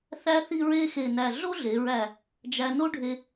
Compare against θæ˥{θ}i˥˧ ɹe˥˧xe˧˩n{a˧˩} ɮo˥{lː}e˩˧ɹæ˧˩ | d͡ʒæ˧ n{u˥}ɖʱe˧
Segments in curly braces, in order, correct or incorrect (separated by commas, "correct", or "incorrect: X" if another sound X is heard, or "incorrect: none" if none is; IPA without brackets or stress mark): correct, incorrect: æ˧˩, incorrect: ɮ, incorrect: o˥